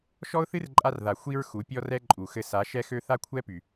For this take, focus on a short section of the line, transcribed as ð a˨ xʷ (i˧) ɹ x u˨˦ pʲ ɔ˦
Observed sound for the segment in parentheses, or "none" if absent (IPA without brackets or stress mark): i˧